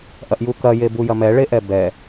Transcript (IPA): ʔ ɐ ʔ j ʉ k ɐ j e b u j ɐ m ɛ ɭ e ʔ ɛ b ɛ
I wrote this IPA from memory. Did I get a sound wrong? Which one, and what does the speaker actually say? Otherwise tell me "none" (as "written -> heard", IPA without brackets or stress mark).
ʉ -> u